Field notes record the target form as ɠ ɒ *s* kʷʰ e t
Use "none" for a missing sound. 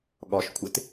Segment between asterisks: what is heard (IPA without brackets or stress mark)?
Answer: ʃ